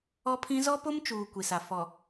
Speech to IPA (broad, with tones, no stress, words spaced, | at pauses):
ɔ˦pʰĩ˦ zɔ˦po˦mt͡ʃuː˨ kʷi˨sa˨ fɔ˨